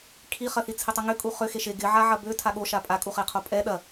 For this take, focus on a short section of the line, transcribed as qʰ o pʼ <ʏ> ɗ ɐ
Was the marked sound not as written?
yes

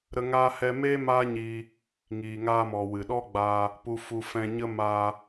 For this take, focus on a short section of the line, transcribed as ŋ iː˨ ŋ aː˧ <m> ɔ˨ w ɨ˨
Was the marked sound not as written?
no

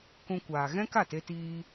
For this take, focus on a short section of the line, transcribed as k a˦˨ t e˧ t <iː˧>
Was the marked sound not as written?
no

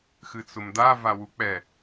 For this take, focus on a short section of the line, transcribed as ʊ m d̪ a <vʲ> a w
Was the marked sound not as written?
yes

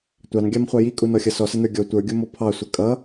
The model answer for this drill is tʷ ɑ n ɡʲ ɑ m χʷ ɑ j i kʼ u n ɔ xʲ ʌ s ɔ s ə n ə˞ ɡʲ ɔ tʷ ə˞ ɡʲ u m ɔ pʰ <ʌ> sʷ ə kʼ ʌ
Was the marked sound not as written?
yes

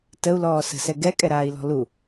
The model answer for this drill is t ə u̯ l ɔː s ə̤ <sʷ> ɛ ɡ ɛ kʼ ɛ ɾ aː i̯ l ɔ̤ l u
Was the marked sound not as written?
yes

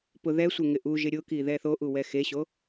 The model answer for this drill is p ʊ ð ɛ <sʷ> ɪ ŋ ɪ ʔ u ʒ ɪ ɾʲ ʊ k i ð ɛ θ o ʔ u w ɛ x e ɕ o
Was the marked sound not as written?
no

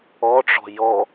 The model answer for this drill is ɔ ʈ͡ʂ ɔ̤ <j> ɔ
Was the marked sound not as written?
no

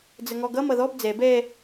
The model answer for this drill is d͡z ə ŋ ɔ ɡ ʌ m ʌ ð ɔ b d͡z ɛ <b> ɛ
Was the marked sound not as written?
no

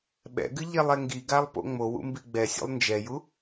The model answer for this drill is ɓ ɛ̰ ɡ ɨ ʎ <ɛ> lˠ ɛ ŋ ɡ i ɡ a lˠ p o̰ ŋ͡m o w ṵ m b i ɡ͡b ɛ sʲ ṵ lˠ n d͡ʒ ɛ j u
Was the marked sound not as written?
no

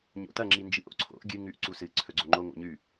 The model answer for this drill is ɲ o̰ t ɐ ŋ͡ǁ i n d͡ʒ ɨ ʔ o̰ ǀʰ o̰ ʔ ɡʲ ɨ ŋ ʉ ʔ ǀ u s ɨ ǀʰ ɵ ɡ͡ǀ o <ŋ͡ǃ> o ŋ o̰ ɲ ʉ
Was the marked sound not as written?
no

